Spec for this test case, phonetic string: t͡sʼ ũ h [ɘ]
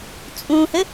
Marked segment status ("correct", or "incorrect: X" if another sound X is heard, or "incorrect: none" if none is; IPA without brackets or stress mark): correct